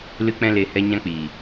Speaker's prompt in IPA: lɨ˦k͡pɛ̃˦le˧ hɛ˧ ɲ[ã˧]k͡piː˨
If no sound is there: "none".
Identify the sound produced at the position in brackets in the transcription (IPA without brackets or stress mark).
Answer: ã˦